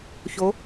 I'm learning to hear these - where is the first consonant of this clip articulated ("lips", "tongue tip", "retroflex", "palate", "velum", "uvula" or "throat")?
palate